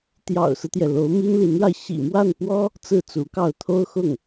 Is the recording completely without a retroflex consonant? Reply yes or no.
no